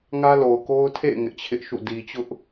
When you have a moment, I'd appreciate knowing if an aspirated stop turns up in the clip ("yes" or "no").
yes